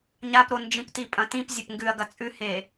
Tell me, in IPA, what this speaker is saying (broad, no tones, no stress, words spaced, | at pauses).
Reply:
ɲapɾo nd͡ʒĩptipʼɐ̃tĩp zʲɐpŋɡʉɐ̯ɡɐ t͡sʼʉhe